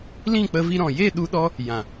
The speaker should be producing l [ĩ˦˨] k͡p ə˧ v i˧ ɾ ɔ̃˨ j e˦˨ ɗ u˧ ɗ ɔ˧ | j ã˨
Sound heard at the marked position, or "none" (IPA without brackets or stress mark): ĩ˦˨